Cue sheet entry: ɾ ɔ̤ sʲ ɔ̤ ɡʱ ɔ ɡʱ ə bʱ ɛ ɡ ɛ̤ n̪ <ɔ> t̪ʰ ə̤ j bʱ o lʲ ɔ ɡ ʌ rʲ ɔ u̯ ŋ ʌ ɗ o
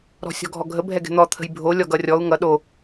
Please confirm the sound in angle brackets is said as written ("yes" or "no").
yes